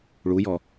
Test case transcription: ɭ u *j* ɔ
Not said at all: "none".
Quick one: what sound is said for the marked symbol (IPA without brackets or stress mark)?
j